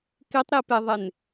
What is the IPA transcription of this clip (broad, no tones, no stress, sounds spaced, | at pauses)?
k ɪ tˤ ɾ i p e ðˤ e n